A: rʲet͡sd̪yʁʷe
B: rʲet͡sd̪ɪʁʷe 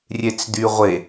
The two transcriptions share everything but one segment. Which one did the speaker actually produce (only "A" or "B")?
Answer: A